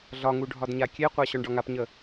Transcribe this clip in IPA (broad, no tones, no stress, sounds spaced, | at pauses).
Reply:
ɮ ɒ ŋ u ɖʱ ɒ d ɲ a kʲ e qʷ a ɕ ɔ ɳ ɖ ɒ ŋ a p ɲ ə